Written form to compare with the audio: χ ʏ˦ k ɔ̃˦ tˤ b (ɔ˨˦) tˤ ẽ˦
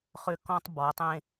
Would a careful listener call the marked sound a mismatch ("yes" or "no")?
no